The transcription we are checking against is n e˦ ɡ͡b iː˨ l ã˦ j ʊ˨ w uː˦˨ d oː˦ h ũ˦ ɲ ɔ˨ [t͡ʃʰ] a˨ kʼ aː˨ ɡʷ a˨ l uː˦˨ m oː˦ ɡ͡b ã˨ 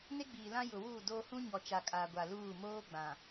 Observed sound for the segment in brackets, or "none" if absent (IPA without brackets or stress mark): t͡ʃ